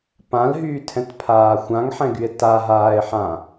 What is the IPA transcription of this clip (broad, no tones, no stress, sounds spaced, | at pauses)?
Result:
p ã l ɦ yː tʰ ɛ̃ t pʰ aː xʷ ã ŋ ħ ɛ̃ ɡ y e̯ t a ɦ aː e̯ ħ ã